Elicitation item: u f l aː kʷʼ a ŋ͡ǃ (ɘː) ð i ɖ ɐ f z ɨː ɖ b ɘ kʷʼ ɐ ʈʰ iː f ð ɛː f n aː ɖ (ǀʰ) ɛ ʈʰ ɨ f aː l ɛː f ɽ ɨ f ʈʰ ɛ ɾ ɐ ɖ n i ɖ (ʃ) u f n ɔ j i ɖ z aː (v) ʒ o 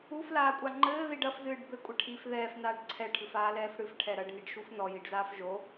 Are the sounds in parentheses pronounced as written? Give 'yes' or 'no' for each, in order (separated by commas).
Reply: yes, yes, yes, no